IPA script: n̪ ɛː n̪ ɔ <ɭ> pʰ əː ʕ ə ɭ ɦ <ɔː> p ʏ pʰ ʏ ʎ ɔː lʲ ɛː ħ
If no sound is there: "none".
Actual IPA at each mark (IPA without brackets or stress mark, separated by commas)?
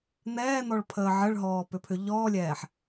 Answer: ɭ, ɔː